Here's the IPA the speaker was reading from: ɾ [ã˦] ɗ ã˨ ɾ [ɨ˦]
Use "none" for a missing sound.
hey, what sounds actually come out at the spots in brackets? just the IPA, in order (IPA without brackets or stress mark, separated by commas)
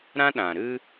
ã˦, ɨ˦